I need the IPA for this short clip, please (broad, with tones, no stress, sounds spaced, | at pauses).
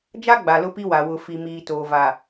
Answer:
d͡ʒ a˦ ɡ͡b a˨ l ʊ˦ p i˦ w a˨ w ʊ˨ f i˨ m iː˨ t oː˨ v a˨